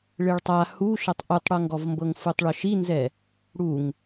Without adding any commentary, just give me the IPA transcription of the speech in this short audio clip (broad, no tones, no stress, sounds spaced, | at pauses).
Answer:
ɭ e ɭ tˤ a h u ʃ ɤ tˤ ʔ u tˤ ɽ ɤ ŋ ɡ ɔ v m b ɤ ŋ f u tˤ ɭ ɔ ʃ i n z ɛ | ɽ u ŋ